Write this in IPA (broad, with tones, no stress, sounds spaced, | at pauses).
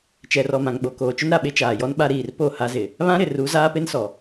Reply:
t͡ʃ ɛ˨ r ɔ˨ m ã˨ ŋ ɓ o˨ k oː˨ t͡ʃ ʊ˦ n ɾ a˨ ɓ e˦ t͡ʃ aː˨ j ɔ˦ n ɓ a˦ ɾ iː˨ r p o˦˨ h a˦ z ɪ˨ | β ã˦ ɾ ɪ˨ r u˨˦ z aː˦ p e˦ n s ɔ˨